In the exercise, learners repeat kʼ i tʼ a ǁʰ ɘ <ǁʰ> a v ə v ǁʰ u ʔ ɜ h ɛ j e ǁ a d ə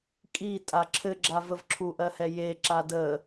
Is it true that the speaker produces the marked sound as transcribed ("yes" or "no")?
no